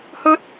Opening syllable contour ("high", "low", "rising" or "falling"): high